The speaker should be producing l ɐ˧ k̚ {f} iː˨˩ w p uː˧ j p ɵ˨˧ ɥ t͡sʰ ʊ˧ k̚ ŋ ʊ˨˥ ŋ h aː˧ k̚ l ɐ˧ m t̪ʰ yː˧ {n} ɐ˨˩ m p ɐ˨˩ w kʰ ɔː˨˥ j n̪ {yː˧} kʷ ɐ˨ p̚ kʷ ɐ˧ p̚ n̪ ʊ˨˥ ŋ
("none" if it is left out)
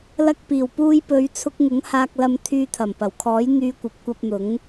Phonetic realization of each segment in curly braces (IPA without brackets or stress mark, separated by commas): p, t̪ʰ, yː˧